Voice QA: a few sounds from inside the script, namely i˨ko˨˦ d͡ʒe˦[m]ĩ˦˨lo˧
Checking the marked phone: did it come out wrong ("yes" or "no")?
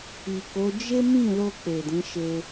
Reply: no